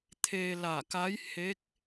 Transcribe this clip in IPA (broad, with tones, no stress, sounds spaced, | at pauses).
t̪ʰ eː˧ l a˧˩ k a˧˥ j h e˧˥ k̚